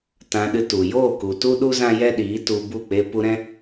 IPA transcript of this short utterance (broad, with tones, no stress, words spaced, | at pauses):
tã˧ɗɨ˧tu˨ joː˦˨ku˨tu˦ɗu˦ zã˦jɛ˦ɗiː˨˦tu˧ bu˦˨ k͡pe˧pu˧ɾɛ̃˦